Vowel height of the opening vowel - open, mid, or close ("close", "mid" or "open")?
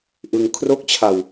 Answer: close